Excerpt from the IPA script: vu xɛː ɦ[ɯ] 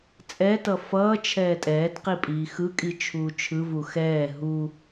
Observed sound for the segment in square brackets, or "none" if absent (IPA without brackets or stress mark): u